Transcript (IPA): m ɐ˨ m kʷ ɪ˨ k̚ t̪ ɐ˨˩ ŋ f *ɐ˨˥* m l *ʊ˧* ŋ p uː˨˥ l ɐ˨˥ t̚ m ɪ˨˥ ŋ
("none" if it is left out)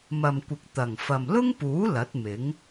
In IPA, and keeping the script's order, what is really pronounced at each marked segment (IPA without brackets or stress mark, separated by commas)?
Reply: ɐ˨, ʊ˥